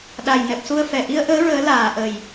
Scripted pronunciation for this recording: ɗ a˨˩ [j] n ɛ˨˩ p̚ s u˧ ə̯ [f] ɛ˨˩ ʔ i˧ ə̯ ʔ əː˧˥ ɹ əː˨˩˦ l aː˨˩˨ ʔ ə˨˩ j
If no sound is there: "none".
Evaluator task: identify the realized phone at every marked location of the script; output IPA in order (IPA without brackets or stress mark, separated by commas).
j, f